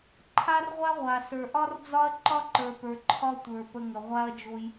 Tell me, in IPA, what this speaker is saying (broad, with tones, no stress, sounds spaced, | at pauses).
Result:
ǃʰ a˦ r ʁʷ a˦ ʁʷ a˨ s ə˞˨ ʔ ɒ˦ r d͡z ɒ˦ ɐ̯ ǃ ɒ˦ ǃ ə˞˨ p ə˞˨ ǃʰ ɒ˦ tʷ ə˞˨ p ə˧ ŋ ə˨ ʁʷ a˦ ɐ̯ d͡ʒ o˧ j